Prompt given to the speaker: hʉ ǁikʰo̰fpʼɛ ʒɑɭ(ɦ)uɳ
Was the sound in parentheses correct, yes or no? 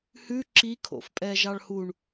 no